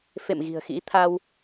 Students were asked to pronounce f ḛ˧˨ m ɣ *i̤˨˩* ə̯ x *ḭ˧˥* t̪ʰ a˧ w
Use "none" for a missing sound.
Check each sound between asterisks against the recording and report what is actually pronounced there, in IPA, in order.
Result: i̤˨˩, ḭ˧˥

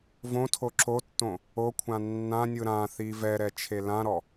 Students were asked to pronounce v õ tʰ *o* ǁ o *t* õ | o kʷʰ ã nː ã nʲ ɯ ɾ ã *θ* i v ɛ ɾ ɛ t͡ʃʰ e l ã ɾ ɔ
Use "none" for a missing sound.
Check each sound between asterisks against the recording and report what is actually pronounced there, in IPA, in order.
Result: o, tː, θ

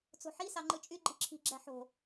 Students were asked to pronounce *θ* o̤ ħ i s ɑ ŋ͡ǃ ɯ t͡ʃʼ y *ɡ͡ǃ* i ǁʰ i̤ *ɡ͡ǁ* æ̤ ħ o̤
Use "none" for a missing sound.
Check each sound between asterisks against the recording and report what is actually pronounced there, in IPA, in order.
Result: t͡s, ɡ͡ǃ, ɡ͡ǁ

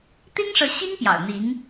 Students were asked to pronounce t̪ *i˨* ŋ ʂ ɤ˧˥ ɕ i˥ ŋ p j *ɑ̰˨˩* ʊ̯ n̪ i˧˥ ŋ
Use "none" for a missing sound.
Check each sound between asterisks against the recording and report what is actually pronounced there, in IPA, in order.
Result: i˥, ɑ̰˨˩

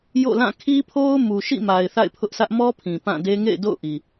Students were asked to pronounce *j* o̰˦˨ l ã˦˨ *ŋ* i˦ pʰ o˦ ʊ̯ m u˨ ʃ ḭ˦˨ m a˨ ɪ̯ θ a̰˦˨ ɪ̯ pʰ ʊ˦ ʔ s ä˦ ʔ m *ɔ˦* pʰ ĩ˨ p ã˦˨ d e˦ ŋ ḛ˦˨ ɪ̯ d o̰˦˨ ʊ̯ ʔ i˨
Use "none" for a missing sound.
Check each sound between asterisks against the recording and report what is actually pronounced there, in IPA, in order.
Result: j, kʰ, ɔ˦

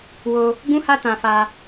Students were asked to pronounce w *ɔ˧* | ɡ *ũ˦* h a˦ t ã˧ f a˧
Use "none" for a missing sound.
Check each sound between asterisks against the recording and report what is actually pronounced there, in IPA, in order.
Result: o˧, ũ˦

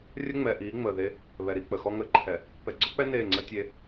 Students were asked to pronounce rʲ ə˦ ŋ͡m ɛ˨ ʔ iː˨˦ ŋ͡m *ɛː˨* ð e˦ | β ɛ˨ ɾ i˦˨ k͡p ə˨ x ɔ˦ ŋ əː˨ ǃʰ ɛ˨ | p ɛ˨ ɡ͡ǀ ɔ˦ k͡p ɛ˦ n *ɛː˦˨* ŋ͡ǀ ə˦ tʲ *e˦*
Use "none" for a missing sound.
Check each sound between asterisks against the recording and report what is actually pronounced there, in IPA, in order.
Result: əː˨, eː˦˨, e˦

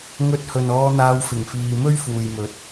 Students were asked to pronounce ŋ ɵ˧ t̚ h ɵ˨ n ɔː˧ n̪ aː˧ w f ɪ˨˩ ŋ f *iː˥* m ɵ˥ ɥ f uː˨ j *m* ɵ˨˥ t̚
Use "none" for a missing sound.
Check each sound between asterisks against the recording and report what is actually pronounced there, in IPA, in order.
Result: iː˨, m

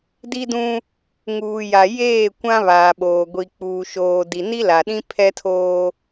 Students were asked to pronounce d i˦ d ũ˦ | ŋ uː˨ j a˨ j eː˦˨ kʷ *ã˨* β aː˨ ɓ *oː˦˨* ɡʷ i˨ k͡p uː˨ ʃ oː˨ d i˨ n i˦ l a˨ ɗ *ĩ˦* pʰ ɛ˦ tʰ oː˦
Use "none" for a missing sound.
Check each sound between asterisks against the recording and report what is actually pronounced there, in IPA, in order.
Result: ã˦, oː˨, ĩ˦

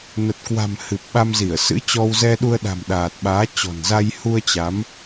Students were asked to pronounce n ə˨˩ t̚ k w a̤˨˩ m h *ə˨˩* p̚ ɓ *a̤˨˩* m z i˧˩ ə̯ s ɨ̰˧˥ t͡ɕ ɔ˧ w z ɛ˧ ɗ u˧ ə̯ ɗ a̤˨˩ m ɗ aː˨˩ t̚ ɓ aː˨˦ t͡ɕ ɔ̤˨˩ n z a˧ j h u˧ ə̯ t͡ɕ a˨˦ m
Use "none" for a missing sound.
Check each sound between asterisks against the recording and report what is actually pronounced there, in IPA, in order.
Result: ɨ˨˩, a˧

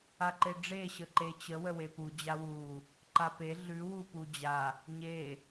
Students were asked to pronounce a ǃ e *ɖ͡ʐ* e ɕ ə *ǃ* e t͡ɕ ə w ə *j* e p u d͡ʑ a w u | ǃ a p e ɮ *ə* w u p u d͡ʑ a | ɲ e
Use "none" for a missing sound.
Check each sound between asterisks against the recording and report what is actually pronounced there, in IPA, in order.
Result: ɖ͡ʐ, ǃ, w, ʉ

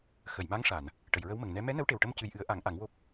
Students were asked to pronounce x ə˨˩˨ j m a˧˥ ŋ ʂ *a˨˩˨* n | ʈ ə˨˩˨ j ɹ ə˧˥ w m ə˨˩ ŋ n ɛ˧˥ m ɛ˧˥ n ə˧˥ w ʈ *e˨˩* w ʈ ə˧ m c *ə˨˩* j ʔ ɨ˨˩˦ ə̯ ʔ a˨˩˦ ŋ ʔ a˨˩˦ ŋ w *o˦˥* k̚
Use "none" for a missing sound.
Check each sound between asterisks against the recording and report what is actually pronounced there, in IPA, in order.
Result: a˨˩˨, e˨˩, ɨ˨˩, o˦˥

